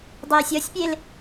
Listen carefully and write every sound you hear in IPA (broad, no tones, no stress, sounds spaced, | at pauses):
dˤ iː sʲ ʌ sʲ pʲ e l